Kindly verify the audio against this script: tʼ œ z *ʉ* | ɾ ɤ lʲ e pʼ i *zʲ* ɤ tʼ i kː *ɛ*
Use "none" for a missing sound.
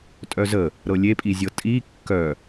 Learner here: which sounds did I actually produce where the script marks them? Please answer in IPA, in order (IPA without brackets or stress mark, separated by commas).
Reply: ə, zʲ, œ